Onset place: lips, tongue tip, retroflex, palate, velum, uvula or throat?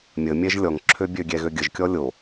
lips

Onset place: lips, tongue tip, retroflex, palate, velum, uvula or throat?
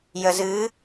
palate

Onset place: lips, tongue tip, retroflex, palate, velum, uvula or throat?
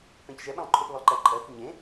lips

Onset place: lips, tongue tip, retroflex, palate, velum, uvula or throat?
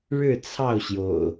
retroflex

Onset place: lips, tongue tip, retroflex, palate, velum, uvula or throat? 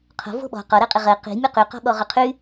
uvula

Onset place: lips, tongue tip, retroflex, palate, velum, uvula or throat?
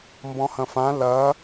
lips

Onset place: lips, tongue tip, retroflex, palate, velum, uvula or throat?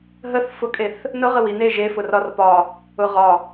throat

